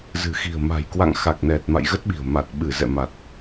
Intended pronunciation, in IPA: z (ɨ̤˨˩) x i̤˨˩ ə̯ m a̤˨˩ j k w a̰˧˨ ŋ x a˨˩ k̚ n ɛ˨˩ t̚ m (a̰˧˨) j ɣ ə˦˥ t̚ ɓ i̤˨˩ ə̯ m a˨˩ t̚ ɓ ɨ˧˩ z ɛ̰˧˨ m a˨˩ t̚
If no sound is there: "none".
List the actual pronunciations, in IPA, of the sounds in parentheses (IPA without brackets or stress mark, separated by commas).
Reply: ɨ̤˨˩, a̰˧˨